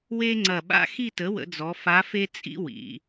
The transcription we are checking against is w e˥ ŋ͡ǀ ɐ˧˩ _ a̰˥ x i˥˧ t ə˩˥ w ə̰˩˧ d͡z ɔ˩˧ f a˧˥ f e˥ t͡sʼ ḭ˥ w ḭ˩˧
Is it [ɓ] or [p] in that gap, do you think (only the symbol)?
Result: ɓ